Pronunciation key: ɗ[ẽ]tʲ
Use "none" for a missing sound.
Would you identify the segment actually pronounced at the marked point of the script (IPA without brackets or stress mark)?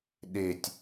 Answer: e